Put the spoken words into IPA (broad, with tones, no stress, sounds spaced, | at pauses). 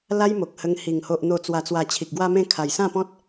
l a˦ j m o˨ k̚ h ə˧ ŋ h i˨˩ ŋ h o˨ ʔ n̪ o˨˩ t͡s w a˨˩ t͡s w a˨˩ t͡ɕʰ i˨ k̚ ɡ w a˧ m ẽ˧ kʰ a˨˩ j s ã˥˧ p ɔ̃˦ t̚